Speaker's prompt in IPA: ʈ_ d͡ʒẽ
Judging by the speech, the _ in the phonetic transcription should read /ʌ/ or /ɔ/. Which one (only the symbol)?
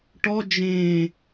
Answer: ɔ